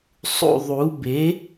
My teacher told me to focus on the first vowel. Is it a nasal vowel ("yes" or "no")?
no